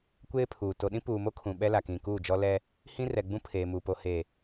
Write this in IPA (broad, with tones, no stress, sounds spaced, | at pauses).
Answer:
kʷ eː˦ pʰ uː˨ t o˨ ɗ ĩ˦ p uː˨ m o˦ kʰ ũ˨ ɓ ɛ˦ l a˨ k ĩ˨ k uː˦˨ d͡ʒ ɔ˦ l ɛ˦ | h ĩ˦ r ɛ˨ ɡ͡b ũ˦ pʰ eː˨ m uː˨ p o˨ h eː˨